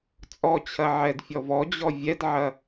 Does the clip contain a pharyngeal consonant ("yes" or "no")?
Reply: yes